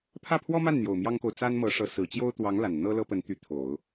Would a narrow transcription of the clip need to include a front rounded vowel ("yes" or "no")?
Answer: yes